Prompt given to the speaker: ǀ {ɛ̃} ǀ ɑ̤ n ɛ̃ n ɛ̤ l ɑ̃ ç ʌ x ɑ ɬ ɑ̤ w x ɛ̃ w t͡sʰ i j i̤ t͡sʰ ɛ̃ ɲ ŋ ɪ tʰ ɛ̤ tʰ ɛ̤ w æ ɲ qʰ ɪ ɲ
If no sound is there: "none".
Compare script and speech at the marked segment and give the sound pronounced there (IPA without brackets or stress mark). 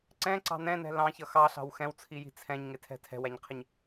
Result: ɛ̃